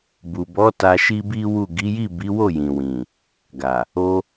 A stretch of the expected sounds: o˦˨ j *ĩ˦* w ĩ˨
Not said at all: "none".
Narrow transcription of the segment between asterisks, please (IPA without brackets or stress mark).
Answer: ĩ˨